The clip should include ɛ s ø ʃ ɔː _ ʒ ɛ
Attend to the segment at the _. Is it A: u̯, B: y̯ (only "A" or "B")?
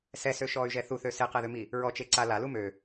B